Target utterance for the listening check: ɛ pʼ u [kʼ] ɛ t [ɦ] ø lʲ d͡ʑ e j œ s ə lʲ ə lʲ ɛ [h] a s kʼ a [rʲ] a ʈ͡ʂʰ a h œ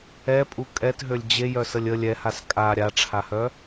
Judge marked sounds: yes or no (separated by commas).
yes, yes, yes, no